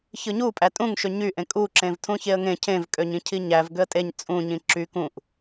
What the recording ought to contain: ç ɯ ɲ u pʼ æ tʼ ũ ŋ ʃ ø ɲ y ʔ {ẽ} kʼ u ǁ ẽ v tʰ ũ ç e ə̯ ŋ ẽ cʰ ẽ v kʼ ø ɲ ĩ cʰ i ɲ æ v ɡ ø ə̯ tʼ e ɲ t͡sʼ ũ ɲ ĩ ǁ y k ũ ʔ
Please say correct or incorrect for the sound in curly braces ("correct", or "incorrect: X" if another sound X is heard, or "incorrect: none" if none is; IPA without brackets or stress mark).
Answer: correct